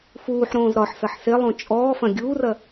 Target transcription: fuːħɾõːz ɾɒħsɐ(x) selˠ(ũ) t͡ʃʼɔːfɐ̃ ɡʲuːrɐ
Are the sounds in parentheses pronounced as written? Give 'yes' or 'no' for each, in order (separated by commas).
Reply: no, no